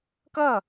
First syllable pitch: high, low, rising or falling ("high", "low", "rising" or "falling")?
falling